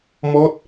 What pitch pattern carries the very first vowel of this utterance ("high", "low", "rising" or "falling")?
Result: falling